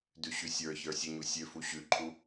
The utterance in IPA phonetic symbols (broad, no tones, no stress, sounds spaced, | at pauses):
d ʉ ɕ ʉ sʲ ə˞ ç ə˞ sʲ e ɲ u sʲ ø f u ɕ ʉ ǃʰ u